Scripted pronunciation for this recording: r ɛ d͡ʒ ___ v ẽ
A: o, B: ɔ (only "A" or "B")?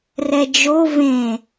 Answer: A